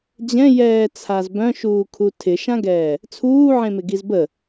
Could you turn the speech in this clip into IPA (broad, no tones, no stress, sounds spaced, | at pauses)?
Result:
d͡ʑ ɛ̃ j ɛː t͡sʰ a z b œ̃ ʃ uː kʰ u tʰ ɪ ʃ ã ɡ ɛː | t͡sʰ uː ʕ ẽ m ɪ ɡ i z b ə